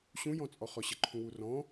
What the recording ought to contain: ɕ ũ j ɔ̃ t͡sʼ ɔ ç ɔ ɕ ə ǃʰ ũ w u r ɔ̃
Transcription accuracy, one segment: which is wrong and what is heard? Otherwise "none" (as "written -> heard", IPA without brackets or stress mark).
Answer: ç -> χ